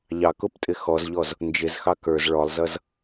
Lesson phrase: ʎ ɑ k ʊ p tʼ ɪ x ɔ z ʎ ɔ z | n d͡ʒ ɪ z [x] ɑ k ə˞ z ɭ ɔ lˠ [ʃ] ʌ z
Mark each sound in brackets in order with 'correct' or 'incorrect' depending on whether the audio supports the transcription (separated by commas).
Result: correct, incorrect